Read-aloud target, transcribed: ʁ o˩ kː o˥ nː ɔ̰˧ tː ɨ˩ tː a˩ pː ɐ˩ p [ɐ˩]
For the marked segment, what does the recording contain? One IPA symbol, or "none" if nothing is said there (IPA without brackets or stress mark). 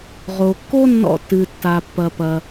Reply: ɐ˩